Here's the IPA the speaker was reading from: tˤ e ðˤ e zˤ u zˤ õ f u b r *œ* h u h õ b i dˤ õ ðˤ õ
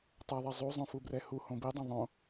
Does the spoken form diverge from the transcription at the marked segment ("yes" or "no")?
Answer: yes